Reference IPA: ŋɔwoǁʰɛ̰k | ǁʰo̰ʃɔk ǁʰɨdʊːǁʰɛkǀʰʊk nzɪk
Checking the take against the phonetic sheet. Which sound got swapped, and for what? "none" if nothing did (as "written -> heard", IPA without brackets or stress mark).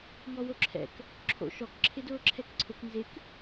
ɨ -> ɪ